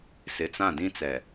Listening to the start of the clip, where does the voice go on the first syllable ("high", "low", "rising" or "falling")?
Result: low